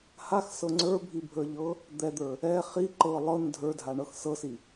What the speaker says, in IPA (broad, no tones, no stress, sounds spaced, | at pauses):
h a x s ɤ ŋ͡ǀ ə˞ bʱ i bʱ ə˞ ʎ ɤ | d̪ ɛ d̪ ə˞ | ɛ χ i ǃ ɤ lˠ ɤ n dʱ ə˞ dʱ a ɳ ɤ x s ɤ s i